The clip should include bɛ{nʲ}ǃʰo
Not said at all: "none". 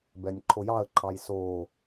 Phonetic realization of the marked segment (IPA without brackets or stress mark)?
nʲ